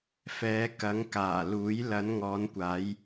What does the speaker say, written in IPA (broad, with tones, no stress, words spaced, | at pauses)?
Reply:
fɛː˨˧kɐ˨˥ŋkaː˨˩luː˨˥j lɐ˨˧nŋɔː˨˧nkʷaː˨˧j